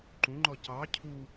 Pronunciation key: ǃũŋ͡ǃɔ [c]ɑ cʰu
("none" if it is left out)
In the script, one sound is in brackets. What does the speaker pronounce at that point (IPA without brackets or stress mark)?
c